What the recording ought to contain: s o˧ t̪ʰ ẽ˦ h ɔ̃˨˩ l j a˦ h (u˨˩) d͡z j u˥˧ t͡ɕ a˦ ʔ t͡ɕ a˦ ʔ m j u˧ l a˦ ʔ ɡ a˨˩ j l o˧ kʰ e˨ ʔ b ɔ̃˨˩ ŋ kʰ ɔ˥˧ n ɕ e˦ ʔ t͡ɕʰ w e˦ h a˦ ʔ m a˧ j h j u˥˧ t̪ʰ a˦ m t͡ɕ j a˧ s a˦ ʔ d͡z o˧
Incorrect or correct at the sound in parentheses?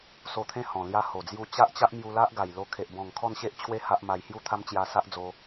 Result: incorrect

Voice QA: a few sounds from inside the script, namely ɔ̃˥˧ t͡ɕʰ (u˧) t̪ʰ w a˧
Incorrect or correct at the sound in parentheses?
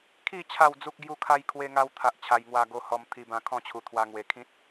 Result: incorrect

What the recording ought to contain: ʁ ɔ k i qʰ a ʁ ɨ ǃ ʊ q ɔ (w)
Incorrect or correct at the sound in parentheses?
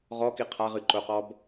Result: incorrect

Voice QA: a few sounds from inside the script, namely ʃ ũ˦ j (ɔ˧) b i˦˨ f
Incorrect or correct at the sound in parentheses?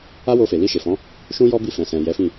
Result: incorrect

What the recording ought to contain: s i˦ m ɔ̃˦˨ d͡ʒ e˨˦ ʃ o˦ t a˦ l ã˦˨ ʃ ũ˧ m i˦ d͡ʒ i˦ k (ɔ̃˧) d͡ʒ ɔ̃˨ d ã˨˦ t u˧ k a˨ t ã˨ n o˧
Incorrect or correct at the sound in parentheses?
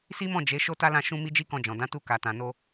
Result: correct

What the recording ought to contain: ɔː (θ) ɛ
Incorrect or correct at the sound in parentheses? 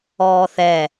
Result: correct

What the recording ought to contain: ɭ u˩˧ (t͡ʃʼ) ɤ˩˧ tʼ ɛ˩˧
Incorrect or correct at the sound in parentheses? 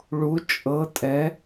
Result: correct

